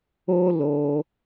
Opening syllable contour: high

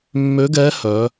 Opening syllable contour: rising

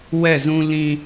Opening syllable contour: falling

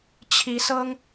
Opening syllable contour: rising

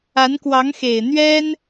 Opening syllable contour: rising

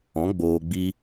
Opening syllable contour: rising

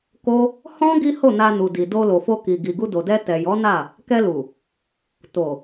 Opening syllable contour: high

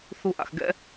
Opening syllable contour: high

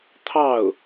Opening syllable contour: falling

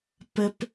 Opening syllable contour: high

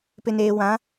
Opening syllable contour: low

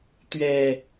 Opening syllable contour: low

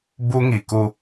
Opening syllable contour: high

